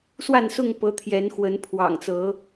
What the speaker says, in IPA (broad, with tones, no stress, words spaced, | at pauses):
swa˥˨nsʊ˥˨ŋ pɤ˨˦t̪ʰjɛ˨˦nxwə˨˦n pʰwɑ̰˨˩ŋt͡sɤ˨˦